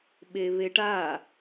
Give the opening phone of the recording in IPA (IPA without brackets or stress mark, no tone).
ɓ